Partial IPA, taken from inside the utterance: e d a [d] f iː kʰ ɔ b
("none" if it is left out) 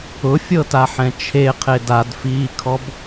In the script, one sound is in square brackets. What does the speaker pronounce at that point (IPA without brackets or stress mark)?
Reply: d